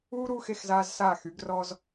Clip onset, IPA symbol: uː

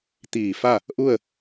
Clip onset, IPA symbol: t̪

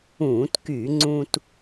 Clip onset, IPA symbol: ũː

